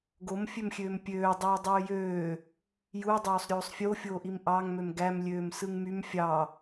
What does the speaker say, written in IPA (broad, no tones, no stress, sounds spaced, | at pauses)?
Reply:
ɡ o m fʲ ø m xʲ øː m pʲ øː dˤ oː dˤ øː j øː | j u dˤ oː sˤ ɾʲ oː sˤ fʲ o fʲ oː ʔ i m ʔ ɑ ŋ m ø m ɡ æ m lʲ øː m s ɯ ŋ m y m fʲ ɑ